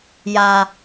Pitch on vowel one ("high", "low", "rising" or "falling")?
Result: high